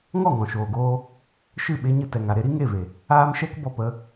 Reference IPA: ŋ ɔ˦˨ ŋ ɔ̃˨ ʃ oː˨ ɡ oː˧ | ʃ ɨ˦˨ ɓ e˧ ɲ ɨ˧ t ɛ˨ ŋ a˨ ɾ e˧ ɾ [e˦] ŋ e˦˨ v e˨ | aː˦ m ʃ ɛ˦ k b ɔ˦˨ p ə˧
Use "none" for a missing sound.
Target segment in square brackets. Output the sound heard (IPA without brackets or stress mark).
i˦